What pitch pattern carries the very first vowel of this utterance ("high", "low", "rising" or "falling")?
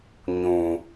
low